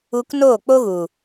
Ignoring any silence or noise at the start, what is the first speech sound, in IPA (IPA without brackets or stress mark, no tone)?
u